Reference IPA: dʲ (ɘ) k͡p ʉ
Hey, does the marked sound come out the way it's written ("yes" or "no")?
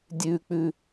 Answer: no